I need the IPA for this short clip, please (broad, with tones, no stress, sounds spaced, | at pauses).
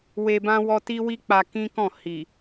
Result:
w e˨ b ã˧ w ɔ˧ t i˦ w i˦ k͡p a˧ k ĩ˦ k ɔ̃˦˨ h i˨